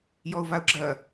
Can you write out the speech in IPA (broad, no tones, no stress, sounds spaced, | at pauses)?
j ɔ ʊ̯ v a ʊ̯ ɡ͡ǁ ɐ